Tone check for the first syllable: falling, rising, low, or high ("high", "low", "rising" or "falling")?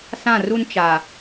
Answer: falling